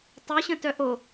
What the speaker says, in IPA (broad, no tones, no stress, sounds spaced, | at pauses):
tˤ o ɕ ə̃ t œ ʔ o